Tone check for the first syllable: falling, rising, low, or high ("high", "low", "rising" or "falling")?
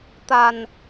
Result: low